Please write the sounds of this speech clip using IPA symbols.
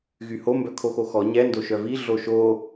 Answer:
ɣ y h o m b œ kʰ o x o x ɔ ɲ ɛ n d o ʃ œ v i ɮ o ʃ o

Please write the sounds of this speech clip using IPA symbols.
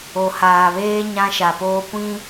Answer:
o˨ h aː˨ β eː˦ ɲ ã˦ ʃ a˨ p oː˦ kʷ ĩ˦

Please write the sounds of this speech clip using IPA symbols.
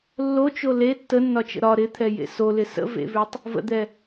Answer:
lː o t͡ʃ o l e tː ə nː ɒ t͡ʃ ə̰ ɾ ɒ ɾ ɪ t̪ʰ ɛ j ḛ s o l ɪ s ə̰ v ḛ v ʉ tˤ | v ə̰ d̪ ɛ

